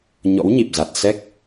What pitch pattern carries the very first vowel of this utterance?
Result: rising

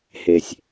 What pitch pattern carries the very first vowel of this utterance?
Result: low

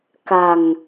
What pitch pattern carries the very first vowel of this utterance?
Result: low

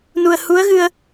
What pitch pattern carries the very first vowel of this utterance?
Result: low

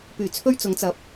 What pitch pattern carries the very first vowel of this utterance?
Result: low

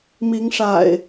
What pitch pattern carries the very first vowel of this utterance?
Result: rising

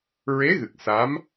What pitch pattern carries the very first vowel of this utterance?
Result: rising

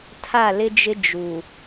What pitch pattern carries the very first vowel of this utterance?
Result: falling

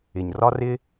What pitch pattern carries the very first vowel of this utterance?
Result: low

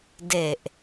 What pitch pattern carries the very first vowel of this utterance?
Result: low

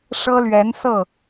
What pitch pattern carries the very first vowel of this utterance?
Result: high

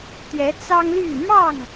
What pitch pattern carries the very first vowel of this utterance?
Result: rising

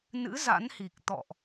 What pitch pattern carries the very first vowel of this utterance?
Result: rising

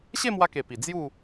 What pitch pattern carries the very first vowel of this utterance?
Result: falling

